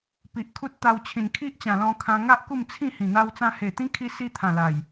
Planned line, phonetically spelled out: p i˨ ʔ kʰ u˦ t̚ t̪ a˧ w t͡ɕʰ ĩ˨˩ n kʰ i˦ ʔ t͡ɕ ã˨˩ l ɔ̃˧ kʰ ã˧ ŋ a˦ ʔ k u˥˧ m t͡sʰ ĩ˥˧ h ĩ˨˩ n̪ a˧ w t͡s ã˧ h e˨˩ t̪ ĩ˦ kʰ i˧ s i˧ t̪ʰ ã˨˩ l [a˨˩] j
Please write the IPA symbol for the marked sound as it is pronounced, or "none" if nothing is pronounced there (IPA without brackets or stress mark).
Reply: a˨˩